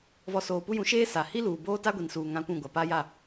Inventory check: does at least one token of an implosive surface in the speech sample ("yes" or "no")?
no